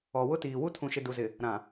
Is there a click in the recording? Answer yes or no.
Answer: no